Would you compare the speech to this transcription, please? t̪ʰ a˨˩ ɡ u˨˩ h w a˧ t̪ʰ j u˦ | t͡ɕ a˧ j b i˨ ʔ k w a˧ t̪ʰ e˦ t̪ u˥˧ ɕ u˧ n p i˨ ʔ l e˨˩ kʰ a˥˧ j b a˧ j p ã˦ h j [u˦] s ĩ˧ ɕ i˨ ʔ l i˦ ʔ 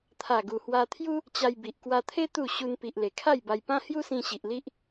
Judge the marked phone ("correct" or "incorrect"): correct